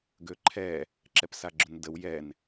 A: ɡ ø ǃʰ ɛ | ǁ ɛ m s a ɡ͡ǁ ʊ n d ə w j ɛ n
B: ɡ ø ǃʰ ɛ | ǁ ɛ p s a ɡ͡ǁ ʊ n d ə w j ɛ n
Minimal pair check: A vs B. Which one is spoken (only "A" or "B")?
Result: B